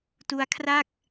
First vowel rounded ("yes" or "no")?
yes